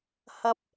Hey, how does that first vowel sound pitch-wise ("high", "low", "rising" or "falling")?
high